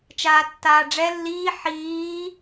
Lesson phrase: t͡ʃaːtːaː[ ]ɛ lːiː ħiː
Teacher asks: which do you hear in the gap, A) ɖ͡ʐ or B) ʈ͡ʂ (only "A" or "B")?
A